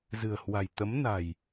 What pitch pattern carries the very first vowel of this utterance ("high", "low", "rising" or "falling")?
low